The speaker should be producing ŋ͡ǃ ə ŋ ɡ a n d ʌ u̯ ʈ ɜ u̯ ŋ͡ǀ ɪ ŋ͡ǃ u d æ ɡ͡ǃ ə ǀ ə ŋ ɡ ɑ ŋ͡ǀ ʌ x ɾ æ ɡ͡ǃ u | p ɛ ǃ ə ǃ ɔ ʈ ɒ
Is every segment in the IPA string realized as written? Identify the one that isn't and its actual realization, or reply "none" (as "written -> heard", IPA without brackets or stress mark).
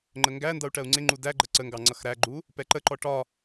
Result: a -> æ